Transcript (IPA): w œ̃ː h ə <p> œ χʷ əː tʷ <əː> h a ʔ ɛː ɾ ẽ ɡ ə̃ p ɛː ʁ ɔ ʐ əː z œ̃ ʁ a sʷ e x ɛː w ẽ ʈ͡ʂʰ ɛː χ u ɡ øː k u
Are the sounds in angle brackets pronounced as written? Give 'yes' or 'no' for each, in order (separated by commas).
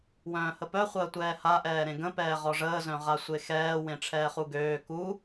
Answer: yes, no